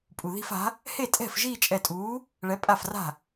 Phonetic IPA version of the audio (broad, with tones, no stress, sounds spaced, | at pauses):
pʼ u˩ ð i̤˥˧ f a̤˨˥ | h e˥˩ tʼ ɛ̤˥˩ f ʒ iː˥˧ t͡ʃʼ ɛ˧˩ tʼ uː˨˥ | ɭ ɛ˨˥ pʼ a˥˩ f r a̤˥˩